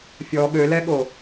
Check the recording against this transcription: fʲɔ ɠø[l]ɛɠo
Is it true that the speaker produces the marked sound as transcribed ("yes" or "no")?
yes